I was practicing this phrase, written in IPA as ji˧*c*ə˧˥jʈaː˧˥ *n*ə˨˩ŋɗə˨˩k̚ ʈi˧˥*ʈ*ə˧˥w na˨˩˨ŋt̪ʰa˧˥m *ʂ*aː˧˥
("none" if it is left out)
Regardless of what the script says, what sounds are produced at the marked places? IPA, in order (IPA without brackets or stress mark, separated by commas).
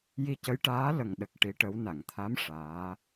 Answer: c, l, ʈ, ʂ